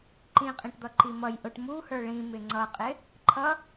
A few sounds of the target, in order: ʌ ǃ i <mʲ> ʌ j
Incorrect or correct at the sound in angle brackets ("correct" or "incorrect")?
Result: incorrect